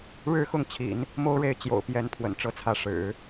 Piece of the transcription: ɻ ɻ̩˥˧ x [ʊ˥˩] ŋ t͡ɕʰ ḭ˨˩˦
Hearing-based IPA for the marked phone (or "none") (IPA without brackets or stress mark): ʊ˥˩